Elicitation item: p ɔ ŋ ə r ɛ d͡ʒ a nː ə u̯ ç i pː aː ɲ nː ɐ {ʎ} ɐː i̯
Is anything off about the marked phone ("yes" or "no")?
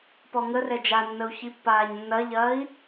no